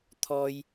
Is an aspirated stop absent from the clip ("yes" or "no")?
no